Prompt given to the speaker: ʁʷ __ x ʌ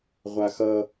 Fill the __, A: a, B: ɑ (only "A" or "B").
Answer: A